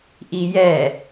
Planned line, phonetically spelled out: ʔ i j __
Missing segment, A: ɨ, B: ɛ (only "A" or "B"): B